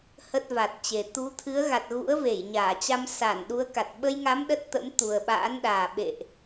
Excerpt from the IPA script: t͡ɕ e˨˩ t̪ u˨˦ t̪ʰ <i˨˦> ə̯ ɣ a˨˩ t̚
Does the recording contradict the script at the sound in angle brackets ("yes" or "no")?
yes